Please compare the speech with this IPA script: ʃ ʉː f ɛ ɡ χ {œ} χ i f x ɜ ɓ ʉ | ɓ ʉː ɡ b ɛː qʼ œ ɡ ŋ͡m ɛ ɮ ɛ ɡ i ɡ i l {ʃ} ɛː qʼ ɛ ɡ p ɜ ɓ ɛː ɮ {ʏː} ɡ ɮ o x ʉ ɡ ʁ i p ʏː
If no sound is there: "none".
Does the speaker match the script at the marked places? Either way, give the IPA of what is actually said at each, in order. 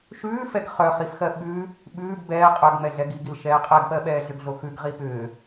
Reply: œ, ʃ, ʏ

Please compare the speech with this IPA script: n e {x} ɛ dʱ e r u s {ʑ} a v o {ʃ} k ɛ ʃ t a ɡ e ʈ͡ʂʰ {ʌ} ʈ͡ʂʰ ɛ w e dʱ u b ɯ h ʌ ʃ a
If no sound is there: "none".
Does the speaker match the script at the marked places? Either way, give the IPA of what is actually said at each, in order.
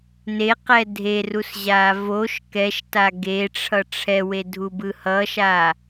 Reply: q, ʑ, ʃ, ʌ

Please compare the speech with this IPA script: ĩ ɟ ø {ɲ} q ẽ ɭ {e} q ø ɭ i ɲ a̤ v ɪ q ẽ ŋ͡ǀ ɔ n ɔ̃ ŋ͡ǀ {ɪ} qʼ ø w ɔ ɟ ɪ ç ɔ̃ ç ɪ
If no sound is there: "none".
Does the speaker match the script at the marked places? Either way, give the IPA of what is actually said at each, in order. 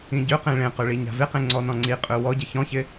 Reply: none, ẽ, i

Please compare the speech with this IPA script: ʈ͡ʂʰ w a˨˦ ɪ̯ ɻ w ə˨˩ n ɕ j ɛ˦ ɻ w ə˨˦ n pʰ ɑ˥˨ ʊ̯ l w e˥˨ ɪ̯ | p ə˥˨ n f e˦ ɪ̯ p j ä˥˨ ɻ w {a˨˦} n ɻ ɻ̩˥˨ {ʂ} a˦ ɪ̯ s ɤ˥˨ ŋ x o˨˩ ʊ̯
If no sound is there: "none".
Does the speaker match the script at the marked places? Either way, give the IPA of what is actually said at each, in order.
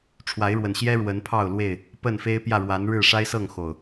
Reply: a˨˦, ʂ

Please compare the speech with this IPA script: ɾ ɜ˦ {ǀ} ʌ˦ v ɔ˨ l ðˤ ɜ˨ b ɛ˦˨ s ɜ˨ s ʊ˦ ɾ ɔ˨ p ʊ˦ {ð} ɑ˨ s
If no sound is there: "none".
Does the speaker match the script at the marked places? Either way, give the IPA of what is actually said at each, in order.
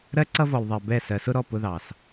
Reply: ǀ, ð

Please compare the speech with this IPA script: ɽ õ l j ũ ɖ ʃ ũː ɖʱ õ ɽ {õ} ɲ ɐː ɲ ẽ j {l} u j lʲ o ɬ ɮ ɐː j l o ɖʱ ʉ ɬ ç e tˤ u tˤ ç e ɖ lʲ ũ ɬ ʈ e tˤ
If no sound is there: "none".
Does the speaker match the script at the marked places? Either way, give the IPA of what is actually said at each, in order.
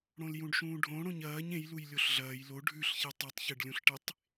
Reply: õ, l

